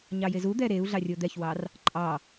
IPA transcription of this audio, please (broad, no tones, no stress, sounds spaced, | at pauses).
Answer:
ɲ ɑ j e z u d̪ ɛ ɾ e u̯ ɮ ɑ rʲ o d̪ ɛ ç w ɑ r | ǃʼ ɑ